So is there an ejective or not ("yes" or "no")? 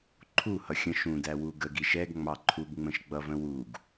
no